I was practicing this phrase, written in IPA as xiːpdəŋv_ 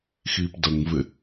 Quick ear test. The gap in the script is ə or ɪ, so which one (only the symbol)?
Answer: ɪ